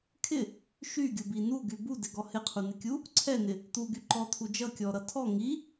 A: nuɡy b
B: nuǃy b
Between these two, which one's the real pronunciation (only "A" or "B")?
A